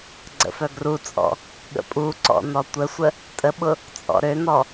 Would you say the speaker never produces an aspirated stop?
yes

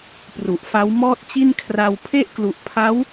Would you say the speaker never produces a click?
yes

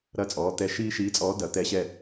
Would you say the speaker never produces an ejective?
no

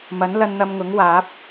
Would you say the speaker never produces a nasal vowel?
yes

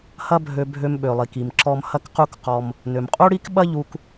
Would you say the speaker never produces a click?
no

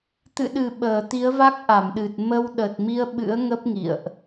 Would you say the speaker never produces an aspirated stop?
yes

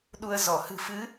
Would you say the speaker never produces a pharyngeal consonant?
yes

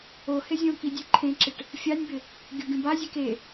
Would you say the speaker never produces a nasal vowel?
no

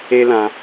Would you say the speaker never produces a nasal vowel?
no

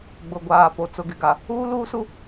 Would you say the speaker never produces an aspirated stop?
yes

